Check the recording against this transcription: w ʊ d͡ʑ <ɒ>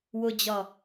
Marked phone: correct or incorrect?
correct